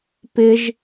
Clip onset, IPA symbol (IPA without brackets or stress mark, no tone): p